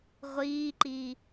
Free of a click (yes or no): no